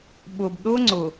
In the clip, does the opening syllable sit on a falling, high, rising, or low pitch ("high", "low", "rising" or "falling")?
low